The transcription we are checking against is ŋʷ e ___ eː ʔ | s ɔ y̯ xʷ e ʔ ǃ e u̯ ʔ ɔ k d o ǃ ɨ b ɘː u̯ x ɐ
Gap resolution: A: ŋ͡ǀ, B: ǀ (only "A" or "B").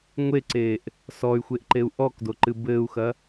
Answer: B